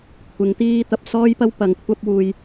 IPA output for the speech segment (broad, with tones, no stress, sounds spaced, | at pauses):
kʷʰ ɪ˨˥ ŋ t̪ iː˥ t̪ ɐ˨ p̚ s ɔː˥ j p ɐ˥ w p ɐ˨ ŋ kʷʰ ɐ˥ p̚ w uː˧ j